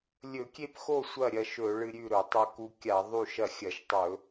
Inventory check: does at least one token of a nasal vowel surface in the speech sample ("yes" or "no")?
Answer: no